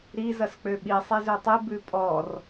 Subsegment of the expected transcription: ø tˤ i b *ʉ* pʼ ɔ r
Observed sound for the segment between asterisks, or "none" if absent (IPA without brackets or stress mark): ʉ